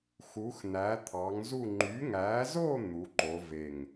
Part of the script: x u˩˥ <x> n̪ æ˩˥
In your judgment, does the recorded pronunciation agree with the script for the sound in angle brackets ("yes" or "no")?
yes